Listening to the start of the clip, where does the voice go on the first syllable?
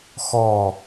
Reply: falling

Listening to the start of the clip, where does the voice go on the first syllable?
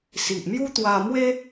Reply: low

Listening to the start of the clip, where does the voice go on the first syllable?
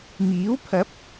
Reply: rising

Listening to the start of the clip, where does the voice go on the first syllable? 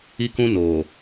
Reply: high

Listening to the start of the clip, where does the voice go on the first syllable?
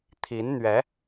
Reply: rising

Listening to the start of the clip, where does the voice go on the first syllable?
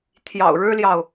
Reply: low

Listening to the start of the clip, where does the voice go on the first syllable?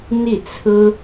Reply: falling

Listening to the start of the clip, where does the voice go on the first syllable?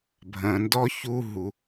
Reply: low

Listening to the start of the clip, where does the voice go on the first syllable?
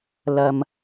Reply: low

